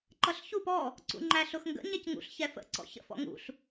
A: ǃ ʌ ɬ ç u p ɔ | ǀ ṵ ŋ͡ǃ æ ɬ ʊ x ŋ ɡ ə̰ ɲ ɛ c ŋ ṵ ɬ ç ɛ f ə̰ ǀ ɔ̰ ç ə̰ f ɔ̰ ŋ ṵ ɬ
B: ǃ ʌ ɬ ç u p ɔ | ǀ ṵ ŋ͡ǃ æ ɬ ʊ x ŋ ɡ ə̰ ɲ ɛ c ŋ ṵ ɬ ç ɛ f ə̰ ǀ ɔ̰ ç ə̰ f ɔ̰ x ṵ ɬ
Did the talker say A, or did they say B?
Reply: A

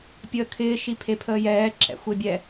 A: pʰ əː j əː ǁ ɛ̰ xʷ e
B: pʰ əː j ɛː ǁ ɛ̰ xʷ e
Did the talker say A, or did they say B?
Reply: B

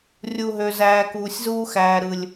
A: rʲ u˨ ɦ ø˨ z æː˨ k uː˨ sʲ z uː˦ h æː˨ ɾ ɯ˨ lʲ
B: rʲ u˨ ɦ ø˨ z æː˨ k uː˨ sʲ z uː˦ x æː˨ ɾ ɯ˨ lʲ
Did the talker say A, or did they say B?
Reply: B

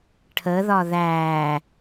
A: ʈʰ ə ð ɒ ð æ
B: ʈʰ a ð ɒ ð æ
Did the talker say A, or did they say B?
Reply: A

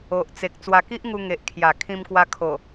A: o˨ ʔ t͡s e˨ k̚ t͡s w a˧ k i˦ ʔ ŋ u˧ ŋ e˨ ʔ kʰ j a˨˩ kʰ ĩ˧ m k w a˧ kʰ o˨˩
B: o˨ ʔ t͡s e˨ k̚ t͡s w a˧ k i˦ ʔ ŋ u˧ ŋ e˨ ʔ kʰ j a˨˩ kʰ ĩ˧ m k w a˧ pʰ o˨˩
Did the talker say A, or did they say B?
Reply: A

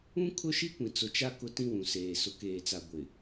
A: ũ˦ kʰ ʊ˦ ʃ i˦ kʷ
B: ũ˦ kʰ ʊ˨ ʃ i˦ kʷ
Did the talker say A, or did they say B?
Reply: A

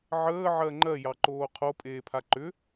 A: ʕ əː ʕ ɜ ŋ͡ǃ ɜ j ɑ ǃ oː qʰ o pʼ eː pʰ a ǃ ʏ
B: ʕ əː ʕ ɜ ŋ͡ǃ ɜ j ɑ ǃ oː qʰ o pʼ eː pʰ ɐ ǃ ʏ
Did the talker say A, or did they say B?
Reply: A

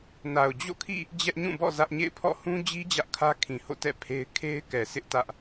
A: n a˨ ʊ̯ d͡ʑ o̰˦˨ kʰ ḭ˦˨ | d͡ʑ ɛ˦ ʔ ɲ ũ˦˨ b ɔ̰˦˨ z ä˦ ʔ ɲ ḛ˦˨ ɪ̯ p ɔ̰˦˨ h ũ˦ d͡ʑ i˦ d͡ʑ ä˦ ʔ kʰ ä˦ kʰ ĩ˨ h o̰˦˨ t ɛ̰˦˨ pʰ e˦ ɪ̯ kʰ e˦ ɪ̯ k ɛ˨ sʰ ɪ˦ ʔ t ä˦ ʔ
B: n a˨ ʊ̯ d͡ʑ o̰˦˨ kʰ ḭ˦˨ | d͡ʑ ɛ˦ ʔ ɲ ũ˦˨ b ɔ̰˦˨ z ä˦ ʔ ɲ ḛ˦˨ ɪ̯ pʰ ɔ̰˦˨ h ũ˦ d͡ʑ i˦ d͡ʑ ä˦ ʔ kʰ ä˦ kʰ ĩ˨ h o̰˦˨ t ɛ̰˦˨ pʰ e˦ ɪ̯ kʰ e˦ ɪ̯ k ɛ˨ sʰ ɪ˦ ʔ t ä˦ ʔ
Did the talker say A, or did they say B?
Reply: B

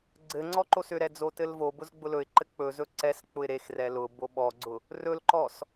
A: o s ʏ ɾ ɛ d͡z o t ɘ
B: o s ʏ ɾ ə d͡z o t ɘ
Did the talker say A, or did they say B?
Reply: A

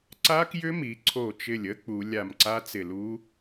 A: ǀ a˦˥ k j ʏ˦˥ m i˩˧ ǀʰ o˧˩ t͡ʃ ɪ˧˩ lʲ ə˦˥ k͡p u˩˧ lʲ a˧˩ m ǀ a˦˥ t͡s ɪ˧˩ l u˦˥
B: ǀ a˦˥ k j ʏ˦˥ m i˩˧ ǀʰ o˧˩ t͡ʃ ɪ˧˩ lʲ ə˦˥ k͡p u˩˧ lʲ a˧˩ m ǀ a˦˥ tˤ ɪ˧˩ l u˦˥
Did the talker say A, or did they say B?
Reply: A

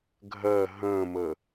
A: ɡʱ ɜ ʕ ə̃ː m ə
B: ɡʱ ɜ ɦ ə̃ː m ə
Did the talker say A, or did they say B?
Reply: B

